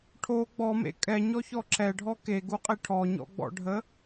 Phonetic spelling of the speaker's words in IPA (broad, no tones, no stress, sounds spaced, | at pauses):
ʈʰ o ɡ͡b ɔ m ḛ kʼ ɛ ɲ ɔ ç ɔ ǁ ɛ ɖʱ ɔ k e ɡ u qʼ e ʈʰ ɔ ɲ ɔ̰ ɡ͡b ɔ̰ ɖʱ ə